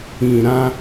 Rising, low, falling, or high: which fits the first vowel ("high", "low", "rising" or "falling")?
low